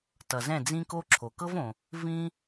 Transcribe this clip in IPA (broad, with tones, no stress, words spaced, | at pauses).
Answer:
tʌ˩zɛ̃˥˩ d͡zĩ˥ko˥ ǁʰo˩kɤ˥võ˩ | vĩ˥